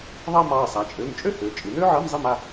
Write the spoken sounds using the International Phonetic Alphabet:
ðˤɑ˥˧mɑ˩˧˩sˤa˩˧ t͡ʃʼø˩˧˩m t͡ʃʼø˥hø˩˧t͡ʃʼɨ˩˧n̪ø˥ ʕɨ˧˥˧mzˤe˥˧ma˥˧

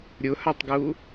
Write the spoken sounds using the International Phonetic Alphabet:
ɾʲʊhatˤɡu

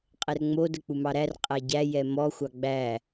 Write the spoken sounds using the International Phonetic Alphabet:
qʼɛrŋ͡mo dək͡pumɑɾær qʼæɟæ jɛmɔ xʷɑɡ͡bæ

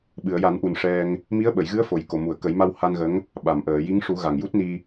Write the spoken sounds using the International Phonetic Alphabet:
ɓɨ˨˩˨ə̯ja˨˩˦nʔu˨˩n ʂɛ˧ŋ | mi˧˥ə̯ɓə˨˩˨jɣɨ˧˥ə̯ fo˨˩jko˨˩ mu˨˩˨ə̯kə˨˩˦jma˧w ha˧nɣə˧˥ŋ | ɓa˨˩˨mʔəː˨˩˨ji˧˥ŋ ʂu˨˩˦ ɣa˨˩ŋju˦˥t̚ni˧

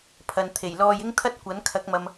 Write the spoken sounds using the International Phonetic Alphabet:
pʰɐ˨n t̪ʰe˨˩jlɔː˧jɪ˥ŋt̪ʰɐ˥t̚ kʷɐ˨˥nkʰɐ˨˥k̚mɐ˨m

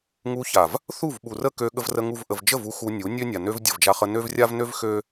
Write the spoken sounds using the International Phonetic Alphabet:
ŋu˧ça˨v | θu˦˨vɓu˨rə˦kø˧ ɠə˧vrə˧ ŋu˦v ʔə˧v d͡ʒə˦˨vu˧ xu˧nʲu˨˦ nʲø˦nʲa˨ nø˧v dʲə˨vd͡ʒa˧χə˧ nø˦vrʲa˦v nø˦v xø˦

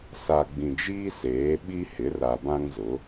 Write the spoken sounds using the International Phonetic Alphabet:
sa˨ɡ͡bĩ˨d͡ʒiː˦ seː˨˦ɓi˦ hɪ˨˦ra˨bã˦ŋzʊ˨˦

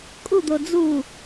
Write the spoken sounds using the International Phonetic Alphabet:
kʼud̪o d͡zu

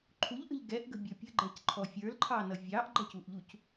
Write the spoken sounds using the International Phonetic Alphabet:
ǃʰuʎʔə̤ʎ ɡɛʔɡə̤bʲə˞ pʲə̤ɡ͡ǃɛcǃʰɔ fʲə˞lǃʰɑnʌ vʲɑʔɡ͡ǃʌcuʔʎuc

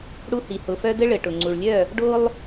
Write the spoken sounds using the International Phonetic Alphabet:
ɽu˦hi˨ hʊ˨fœ˦ dɘ˦ɭɘ˨ʈʊ˨ŋ͡ǀu˨ɭ lʲœ˦˨ | ɖo˦lˠ

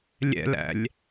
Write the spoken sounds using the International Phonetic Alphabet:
lʲɛ̰læ̰lʲ

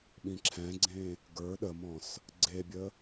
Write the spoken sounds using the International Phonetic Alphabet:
ɓĩǁʰɛ̃ɡ͡ǀẽ | ɡə˞ ɗəmɔ̃s | ɡ͡ǀebʲə

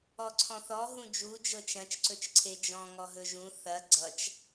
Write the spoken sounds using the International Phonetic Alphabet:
ɔǀʰɔ̃θɔ ɦũd͡ʒu d͡ʒɤt͡ʃɐ̃t͡ʃ ǀɵt͡ʃǀʰed͡ʒɔ̃ ŋɔɦɵʒũ θɐ ɡ͡ǀʌt͡ʃ

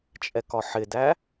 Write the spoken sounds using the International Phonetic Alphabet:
t͡ʃʼɛkɒħɪdæ

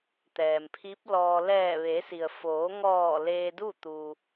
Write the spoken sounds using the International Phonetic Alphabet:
t̪ɛː˩mpʰi˧˥p̚lɔː˧ lɛː˧˩ʋe˩˧si˩ə̯ foː˩˧ŋɔː˧˩ leː˧du˥˨ t̪u˩

